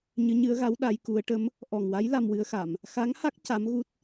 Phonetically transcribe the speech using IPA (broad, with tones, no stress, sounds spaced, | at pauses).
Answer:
ɲ ɨ˧˥ ɲ ɨ˧˥ ə̯ ɣ a˧˥ w ɗ a˧˥ j k u˧˥ ə̯ ʈ ə˧˥ m | ʔ ɔ˨˩ ŋ w a˧˥ j l a˧ m w ɨ˧˥ ə̯ x a˨˩˨ m | x a˧˥ ŋ h a˦˥ k̚ c a˧˥ m ɣ u˦˥ t̚